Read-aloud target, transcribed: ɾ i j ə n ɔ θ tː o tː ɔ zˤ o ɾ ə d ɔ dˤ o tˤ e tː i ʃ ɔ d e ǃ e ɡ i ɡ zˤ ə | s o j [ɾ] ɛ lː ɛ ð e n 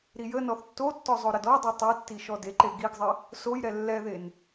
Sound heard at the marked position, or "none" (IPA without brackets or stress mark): ɾ